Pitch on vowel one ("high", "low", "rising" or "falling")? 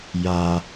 low